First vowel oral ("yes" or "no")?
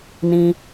no